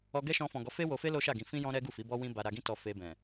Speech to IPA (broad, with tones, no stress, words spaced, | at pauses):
ɔ˧ɡɛ˦ʃɔ̃˧fɔ̃˨ ɡɔ˨˦fe˦wo˧fe˦ lo˦ʃa˦˨ɡĩ˧ fĩ˦ jɔ̃˦ɾɛ˦ ɡu˦˨fi˨˦bɔ˦wĩ˦ ba˧ ɾa˧ɡĩ˦tɔ˧ fe˧bɛ̃˨